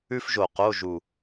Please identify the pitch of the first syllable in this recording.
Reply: high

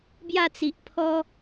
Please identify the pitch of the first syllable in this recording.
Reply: falling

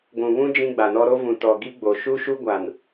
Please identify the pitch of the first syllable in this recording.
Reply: low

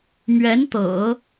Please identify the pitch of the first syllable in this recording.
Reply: rising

